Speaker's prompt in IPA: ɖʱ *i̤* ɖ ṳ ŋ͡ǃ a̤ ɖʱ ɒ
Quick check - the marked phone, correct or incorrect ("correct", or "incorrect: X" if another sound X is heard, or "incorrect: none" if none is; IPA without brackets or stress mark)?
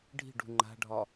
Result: correct